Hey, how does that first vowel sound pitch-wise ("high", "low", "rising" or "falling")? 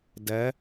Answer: rising